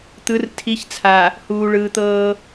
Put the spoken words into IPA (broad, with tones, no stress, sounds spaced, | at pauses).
t̪ ɯ˨˦ r tʰ i˨˦ ç t͡sʰ a˨ | h uː˨ ɭ ɯː˨ t̪ ɤː˦